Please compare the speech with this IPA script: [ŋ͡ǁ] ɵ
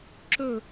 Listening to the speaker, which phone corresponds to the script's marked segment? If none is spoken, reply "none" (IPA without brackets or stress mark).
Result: ǁ